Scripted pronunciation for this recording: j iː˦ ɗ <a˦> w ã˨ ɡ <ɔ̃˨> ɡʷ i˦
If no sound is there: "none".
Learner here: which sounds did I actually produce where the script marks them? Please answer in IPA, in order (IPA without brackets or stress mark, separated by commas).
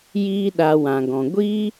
a˧, ɔ̃˨